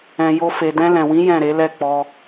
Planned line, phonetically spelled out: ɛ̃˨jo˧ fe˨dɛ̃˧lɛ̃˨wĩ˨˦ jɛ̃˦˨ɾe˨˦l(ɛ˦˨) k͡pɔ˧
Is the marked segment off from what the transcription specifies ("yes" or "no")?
no